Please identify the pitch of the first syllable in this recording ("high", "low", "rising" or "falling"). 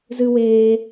high